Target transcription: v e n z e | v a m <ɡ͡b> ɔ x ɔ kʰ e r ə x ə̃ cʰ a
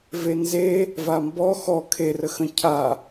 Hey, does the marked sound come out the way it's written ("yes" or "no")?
no